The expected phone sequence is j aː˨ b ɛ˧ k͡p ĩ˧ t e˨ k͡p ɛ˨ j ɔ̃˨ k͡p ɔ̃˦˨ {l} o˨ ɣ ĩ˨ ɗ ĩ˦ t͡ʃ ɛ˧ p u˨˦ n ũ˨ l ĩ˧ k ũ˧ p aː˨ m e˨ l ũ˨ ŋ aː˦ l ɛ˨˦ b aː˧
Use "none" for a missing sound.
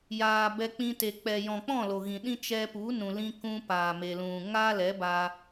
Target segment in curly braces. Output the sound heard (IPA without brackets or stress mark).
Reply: l